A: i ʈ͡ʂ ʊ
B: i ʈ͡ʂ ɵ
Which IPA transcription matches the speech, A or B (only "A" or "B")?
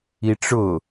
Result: A